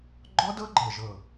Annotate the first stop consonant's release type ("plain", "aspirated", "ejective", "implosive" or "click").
click